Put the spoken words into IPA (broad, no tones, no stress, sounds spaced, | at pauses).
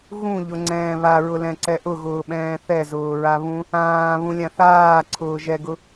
ɣ ũ ʎ ʊ ŋ͡ǀ ɛ̃ː β a ɹ ʊ l ɛ̃ ǀ ɛ ʔ ʊ ɣ ʊː ɓ ɛ̃ː θ ɛ z ʊː ɹ a β ũ | ãː β ũ lʲ ã θ aː ǀʰ ʊː ʒ ɛ ɡ ʊ